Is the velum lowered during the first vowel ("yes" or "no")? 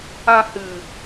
yes